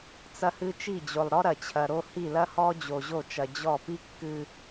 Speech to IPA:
t͡s ɐ˦ h ɨ˦ t͡ʃ i˦˨ d͡ʑ o˨ lˠ ɾ ɔ˦ ɾ ɐ˨ t͡ɕʰ ɐ˨ ɾ o˦ h i˦˨ l ɐ˦ h ɔ˦ d͡ʑ o˨ ʑ o˦˨ t͡ʃ ɐ˨ d͡ʑ ɔ˦˨ p i˦ kː ɨ˨

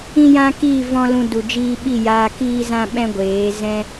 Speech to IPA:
ĩ˦ j ã˦ k iː˦˨ v ɔ̃˧ l ũ˧ d u˨ d͡ʒ iː˧ ɓ i˦˨ j aː˧ k iː˦ z ã˦ ɓ ɛ̃˦ ɡʷ eː˨˦ z ɛ̃˦

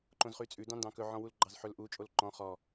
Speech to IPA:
ǃ õ z χ y t͡sʼ ʉ d ɑ̃ n d ɑ̃ k ɵ ʕ ɔ̃ w u l ɡ͡ǃ ɑ z ħ ɵ l ʔ u t͡ʃʼ o l ǃ ɔ̃ χ ɔ

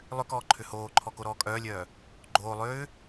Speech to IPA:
lˠ ʏ k ɔː ǃʰ ʏ h oː ǃʰ ɔ k o ɾ ɔː kʼ œː lʲ œː | ɡ͡ǃ oː lˠ ʏː

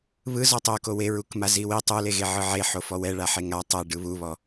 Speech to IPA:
β ɯ z ɔ tˤ o k o w e ɹ u k m a z i w i tˤ u l e ɣ e ʕ ɯ ʕ e ħ o f ɔ w ɛ ɭ a ħ e ŋ a tˤ ɛ ɖ ɯ β u β ɔ

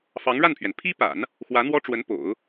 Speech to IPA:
f ɑ˧˥ ŋ ɻ a˥˩ n pʰ ɥ ɛ˩ n pʰ i˥ p a̰˨˩˦ n | x w ä˧˥ n̪ w ɔ˥ ʈ͡ʂ w ə˧˥ n p o̰˨˩˦ ʊ̯

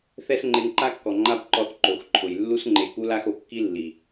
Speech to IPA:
θ ɛ˦ s ŋ͡ǃ e˧ ŋ ǃ a˦ kː ɔ˨ ŋ͡ǃ a˦ b ǃ ɔ˧ θ ǃ o˨ x ǃʰ ʊ˨ j lː u˧ s ŋ͡ǃ e˨ k u˧ l a˧ x o˨ kː i˦ lː i˨

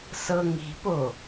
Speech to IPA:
s ɤ ŋ i̤ p o

